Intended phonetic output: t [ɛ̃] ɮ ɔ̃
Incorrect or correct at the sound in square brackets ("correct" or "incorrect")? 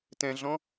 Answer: correct